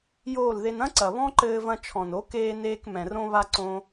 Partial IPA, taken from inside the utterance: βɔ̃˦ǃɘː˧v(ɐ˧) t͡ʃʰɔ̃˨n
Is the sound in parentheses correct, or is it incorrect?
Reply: incorrect: ɐ̃˧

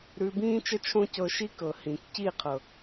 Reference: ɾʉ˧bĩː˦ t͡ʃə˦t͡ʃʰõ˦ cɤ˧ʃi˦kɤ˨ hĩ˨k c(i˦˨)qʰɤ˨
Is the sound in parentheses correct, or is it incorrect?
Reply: correct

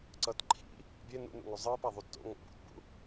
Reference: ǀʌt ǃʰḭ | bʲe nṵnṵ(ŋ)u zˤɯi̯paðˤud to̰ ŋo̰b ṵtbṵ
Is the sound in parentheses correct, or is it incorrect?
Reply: correct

